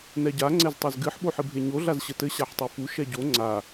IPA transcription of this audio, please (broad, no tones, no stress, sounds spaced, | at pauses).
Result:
n ɛ ɟ a ŋ͡ǀ ɛ z tˤ e z ɡ ɨ ħ ɓ o ħ ɨ bʱ e ɲ o ɮ a z ɕ ɘ t ɘ ɕ a ħ tˤ u f u ʃ ɛ ɟ o ŋ͡ǀ a